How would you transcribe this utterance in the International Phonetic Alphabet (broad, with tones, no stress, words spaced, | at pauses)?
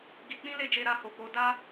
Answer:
ɡi˧ k͡pĩ˦le˦˨d͡ʒe˧ɾa˧ ho˨k͡po˨˦ da˦